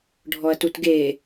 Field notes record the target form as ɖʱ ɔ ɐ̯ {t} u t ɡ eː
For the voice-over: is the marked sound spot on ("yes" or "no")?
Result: yes